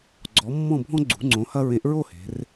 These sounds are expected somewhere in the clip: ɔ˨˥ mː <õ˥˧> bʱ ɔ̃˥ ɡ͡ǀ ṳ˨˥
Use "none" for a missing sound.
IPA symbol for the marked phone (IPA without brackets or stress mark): ɔ̃˥˧